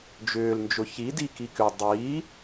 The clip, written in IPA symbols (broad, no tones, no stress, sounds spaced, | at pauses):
d͡ʒ ʏː l n d͡ʒ ʊ ç i d i k i k ʏ dˤ i